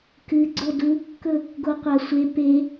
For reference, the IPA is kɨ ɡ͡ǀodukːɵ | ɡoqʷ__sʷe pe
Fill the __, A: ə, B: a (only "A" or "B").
B